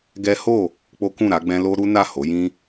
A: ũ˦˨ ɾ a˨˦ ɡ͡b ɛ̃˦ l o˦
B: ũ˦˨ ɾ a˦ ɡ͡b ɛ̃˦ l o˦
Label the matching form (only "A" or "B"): A